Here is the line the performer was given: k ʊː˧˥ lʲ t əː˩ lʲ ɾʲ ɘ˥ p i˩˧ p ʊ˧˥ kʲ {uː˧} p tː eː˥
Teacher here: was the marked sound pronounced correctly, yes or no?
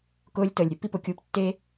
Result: yes